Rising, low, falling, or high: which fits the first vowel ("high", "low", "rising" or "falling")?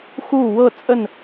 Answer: falling